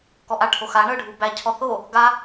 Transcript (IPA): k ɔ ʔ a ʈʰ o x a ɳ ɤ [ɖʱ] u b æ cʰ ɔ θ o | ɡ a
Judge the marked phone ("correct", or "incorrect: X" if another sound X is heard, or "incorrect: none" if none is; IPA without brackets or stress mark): correct